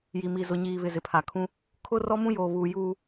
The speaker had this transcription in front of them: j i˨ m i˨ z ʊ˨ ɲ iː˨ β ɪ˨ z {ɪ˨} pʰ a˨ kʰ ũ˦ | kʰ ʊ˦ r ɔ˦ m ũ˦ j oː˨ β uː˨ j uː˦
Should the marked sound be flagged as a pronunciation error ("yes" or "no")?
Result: no